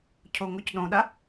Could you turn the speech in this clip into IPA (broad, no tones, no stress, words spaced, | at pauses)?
cʰoŋoc ɗõɗa